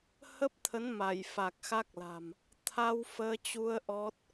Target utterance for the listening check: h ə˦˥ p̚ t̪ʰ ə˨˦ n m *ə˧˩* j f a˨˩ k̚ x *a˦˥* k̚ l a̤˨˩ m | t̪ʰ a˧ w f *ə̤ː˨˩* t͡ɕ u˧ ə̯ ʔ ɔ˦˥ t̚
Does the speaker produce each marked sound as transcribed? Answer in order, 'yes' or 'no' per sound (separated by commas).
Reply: no, yes, no